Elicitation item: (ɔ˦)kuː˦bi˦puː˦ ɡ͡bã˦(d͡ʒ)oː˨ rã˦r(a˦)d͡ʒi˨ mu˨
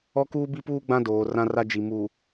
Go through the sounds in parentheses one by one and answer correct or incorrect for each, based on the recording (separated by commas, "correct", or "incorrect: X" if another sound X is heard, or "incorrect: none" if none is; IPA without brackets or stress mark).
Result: correct, incorrect: d, correct